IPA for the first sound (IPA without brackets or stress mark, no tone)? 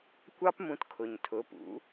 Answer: kʷ